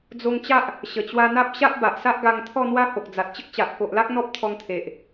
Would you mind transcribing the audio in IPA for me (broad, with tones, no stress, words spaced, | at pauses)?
d͡zo˧ŋt͡ɕa˦ʔ | ɕə˨˩t͡ɕwa˧n̪a˦p̚ ɕa˦ʔba˨ʔsa˦ʔɡa˧ŋ t̪ʰɔ˥˧n̪wa˦ho˨k̚d͡za˨t̚ t͡ɕə˦k̚t͡ɕa˨ʔ ko˨ʔla˦k̚ n̪ɔ˦p̚t̪ʰɔ˧ŋt̪ʰe˨ʔ